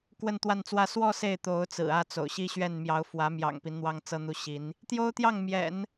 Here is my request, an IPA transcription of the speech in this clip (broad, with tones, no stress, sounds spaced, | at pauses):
k w ə˥˧ n t̪ w a˥˧ n t͡s w ä˥˧ s w ɔ˥˧ s e˥˩ ɪ̯ t̪ o˧˥ ʊ̯ t͡s ɹ̩˨˩ ä˥˩ t͡s o̰˨˩ ʊ̯ ɕ i˥ ɕ ɥ ɛ˥˩ n m j ɑ˧˥ ʊ̯ f w ä˧˥ m j ɑ̰˨˩ ŋ p i˦ n n̪ w ɑ˥ ŋ t͡s ɤ˥ n̪ u˥˩ ɕ i˧˥ n | t̪ j o˥ ʊ̯ t̪ j ɑ˥˩ ŋ m j ɛ̰˨˩˦ n